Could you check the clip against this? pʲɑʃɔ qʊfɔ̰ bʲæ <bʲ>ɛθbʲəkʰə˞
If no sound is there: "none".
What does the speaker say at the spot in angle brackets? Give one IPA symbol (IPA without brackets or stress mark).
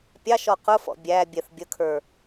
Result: bʲ